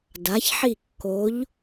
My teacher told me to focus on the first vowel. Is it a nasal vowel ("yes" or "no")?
no